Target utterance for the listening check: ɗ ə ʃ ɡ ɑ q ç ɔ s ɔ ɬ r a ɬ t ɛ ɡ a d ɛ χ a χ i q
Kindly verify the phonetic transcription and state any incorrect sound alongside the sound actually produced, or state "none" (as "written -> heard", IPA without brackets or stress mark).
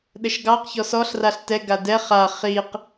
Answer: none